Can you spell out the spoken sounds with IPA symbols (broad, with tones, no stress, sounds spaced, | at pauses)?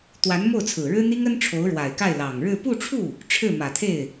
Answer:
t̪ w a˧˥ n m o˥˩ ʊ̯ t͡sʰ ɹ̩˨˩ ɻ ɻ̩˥ n̪ i˥ ŋ ə˥ n ʈ͡ʂʰ o˧˥ ʊ̯ ɻ w a˨˩ ɪ̯ k a˥˩ ɪ̯ l ɑ˨˩ ŋ ɻ ɻ̩˥˧ p u˥˧ ʈ͡ʂʰ u˥˩ | ʈ͡ʂʰ ɻ̩˥˩ m ä˨˩ t̪ʰ e˥˩ ɪ̯